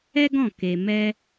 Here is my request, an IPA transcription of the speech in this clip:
ɛ˦ɡɔ̃˦˨ ke˧ mɛ˧

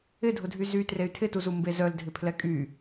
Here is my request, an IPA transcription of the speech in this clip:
ɪdʱʊdʱy zy trey̯tʰɪtuzu mbezœl dʱɪpʰlɛkʼy

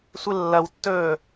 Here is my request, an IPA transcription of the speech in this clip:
sʷɨlːɐwtːɵː

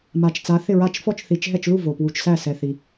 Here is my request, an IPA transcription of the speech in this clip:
ma˨˩t͡ʃ t͡sa˨˦θɪ˥˨ɹa˥˨t͡ʃ fɔ˥˨t͡ʃθi˨˦t͡ʃɦɛ˥˨t͡ʃlu˥˨ vo˨˩pwu˨˩t͡ʃsæ˥˨ sɛ˨˩θi˨˩

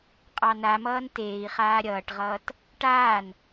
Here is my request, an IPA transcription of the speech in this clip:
qʼɑnamʌːn teːi̯χaː ɾʲʌːʈʁʌːt | ʈaːn

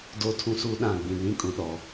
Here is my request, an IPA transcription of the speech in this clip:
doː˦tʰũ˦suː˦ ɗã˦˨ɡ͡bĩ˨nĩ˦ kʼũ˨ɗɔ˨

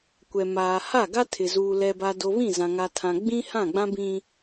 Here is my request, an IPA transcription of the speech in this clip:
kʷɛ˨maː˨ha˦˨ ɡa˦tʰɪ˨zuː˨ lɛ˨ba˨do˨ βĩ˦˨zã˨ ŋa˨tʰã˨ ɡ͡bĩ˦ hã˦˨ɡ͡bã˦ bĩ˦

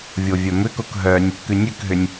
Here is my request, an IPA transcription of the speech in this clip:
vʲovʲœmʏkok ɦœnʲ | kʉnʲʉkɦʏnʲ

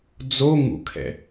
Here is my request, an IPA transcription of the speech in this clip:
d͡zo ŋṵkʰɛ̰

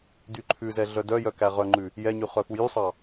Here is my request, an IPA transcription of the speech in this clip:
dyǃʰʉzɛ ɮœdœjœ kæʁœŋ͡ǃʉ | jɛɲʉ χœfujysˤɑ

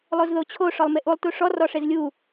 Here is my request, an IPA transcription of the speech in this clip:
lˠozðot͡ɕʰo ʂɔlˠmeʔulˠ tuʂɔ rɔʂezlʲu

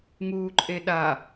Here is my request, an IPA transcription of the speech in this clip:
ŋuːǃʼeɗa

